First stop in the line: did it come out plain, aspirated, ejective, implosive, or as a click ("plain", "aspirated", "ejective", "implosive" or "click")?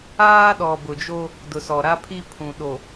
implosive